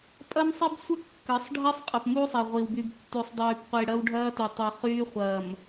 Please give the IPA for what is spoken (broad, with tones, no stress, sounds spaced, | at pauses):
pʼ ɐ˦ m sˤ i˦ b sʷ ə˦ kː ə˨˦ sˤ ɖʱ i˦ sˤ qʼ ɐ˨ p m u˦ sˤ ɐ˨ ʁʷ i˨ w b y˨ b tː y˨ sˤ dˤ yː˨ p qʷ i˨ ɽ ɐ˦ w ɖʱ ɐː˦ t y˨ tˤ i˨ χ yː˦ χʷ ɐː˨ m